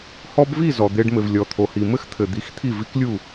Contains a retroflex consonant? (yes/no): yes